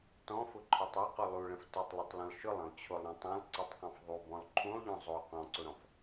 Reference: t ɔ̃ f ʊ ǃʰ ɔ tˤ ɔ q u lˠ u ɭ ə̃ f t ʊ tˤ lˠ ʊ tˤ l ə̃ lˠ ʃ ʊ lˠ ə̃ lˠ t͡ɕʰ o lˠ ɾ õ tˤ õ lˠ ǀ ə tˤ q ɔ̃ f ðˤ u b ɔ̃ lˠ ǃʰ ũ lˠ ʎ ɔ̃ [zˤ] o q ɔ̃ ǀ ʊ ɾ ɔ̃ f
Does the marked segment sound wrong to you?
no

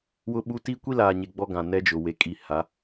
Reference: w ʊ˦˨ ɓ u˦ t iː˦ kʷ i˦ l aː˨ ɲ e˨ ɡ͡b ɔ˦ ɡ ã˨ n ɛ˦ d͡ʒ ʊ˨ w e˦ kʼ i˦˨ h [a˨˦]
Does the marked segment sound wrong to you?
no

